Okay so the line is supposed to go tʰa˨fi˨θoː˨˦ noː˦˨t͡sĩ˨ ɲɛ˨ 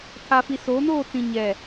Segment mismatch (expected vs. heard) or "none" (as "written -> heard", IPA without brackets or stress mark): θ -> s